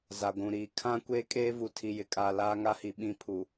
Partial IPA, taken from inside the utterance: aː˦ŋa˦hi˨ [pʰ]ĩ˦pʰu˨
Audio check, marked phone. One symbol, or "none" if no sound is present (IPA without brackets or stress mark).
ɓ